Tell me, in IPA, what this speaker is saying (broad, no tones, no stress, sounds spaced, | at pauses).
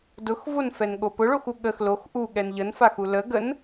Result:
d ʊ x v o n f ɛ n ɠ o p ʊ ɭ o x u ɠ ə x l o x ʔ u ɠ ɛ n ʎ ə n f a x u l ə ɡ ə n